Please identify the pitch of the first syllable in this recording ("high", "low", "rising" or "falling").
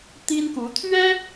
high